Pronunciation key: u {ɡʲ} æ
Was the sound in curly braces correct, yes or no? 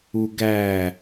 no